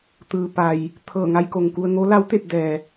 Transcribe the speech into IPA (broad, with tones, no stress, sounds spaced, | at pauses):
t̪ ɯː˩ p a˩ j | t̪ʰ ɤː˧˩ ŋ a˧ j k o˩ ŋ k u˧ ə̯ ŋ o˧˥ l a˧˥ w t̪ e˥˨ p̚ d ɛː˩